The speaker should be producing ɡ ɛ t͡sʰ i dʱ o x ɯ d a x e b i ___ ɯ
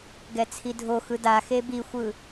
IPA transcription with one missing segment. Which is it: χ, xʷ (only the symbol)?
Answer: xʷ